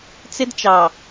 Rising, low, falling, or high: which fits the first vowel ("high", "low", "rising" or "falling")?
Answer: high